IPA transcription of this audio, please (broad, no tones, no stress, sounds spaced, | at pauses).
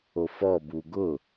o f ɔ b u ɡ ʊ